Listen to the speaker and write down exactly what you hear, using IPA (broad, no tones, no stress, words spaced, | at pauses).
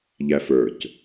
ʎæfə˞c